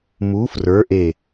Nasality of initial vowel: oral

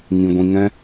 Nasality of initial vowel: nasal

